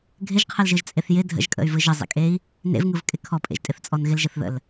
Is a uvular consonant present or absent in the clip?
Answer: present